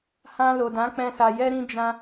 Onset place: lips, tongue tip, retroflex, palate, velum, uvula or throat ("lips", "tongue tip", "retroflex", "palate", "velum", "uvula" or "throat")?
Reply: throat